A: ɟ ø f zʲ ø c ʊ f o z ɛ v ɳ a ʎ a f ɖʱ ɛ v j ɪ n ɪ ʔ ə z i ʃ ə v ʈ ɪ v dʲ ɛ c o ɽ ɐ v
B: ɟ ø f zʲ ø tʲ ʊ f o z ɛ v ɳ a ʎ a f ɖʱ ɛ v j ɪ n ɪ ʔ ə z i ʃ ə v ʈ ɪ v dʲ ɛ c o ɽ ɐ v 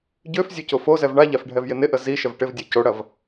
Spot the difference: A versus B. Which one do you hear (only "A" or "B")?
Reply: A